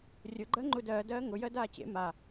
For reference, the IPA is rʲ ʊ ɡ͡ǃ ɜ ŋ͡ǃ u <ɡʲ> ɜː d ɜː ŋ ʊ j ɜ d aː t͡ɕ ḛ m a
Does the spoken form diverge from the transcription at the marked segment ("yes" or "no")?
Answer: yes